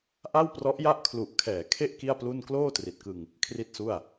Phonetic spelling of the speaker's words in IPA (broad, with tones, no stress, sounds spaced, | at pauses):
ʔ a˥˩ w p r ɔ˦˥ ʔ j a˥˩ ʔ kʰ l u˨˩ ʔ kʰ ɛː˩˦ kʰ e˥˩ ʔ k i˥˩ a̯ p l u˥˩ n k l oː˥˩ t r i˨˩ t̚ k ɯ˧ ŋ | kʰ r i˥˩ t̚ s u˥˩ a̯